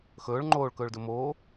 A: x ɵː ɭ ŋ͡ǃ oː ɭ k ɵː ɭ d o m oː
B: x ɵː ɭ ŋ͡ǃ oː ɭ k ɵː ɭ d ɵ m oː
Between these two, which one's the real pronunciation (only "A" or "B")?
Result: B